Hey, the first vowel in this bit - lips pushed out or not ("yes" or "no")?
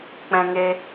no